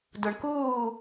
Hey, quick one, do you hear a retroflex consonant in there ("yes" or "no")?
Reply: yes